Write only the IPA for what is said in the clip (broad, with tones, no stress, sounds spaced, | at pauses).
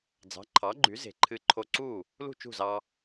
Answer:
d͡z ɑ̤˩˥ ǃʰ ɑ˩˥ ɡ͡ǃ y˩˥ z e̤˩ ǃʰ ɨ˧ ǃʰ o˧ ǀ u˥˩ | l ṳ˥˩ t͡ʃ ṳ˥˩ z ɑ˧